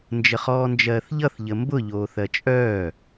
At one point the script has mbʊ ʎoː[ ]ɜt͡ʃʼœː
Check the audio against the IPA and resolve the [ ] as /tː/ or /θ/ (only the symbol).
θ